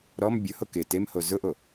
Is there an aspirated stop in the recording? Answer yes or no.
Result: no